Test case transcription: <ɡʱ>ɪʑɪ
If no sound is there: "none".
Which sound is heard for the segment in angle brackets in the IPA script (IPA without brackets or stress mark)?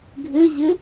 ɡʱ